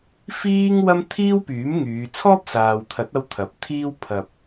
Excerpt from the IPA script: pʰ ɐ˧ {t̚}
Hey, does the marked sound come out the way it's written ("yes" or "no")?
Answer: no